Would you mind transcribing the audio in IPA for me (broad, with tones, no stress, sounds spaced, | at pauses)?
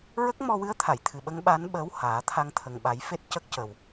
ɹ ə˦˥ k̚ m ɔ˧ w ɨ˧˥ ə̯ t̪ʰ a˨˩˨ j t̪ʰ ɨ˨˩ ɓ ə˧˥ ŋ ɓ a˧˥ n ɓ əː˧˥ w h aː˨˩˦ t̪ʰ a˧ ŋ t̪ʰ ə˨˩ ŋ ɓ a˨˩˦ j f e˦˥ t̚ c ə˦˥ k̚ c ə˨˩ w